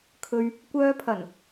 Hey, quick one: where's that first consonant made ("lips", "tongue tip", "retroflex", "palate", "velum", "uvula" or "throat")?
velum